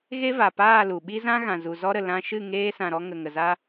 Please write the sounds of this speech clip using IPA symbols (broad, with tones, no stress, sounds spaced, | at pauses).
ɣ e˦ v a˨ p aː˦˨ l u˨ ɓ i˦ z ã˦ ɣ ã˨ z u˨ z ɔ˦ ɾ ə˨ l ã˧ ʃ ɨ˦˨ ŋ eː˦ s ã˨ ɾ ɔ˧ ŋ ə˨ ŋ ə˨ z a˦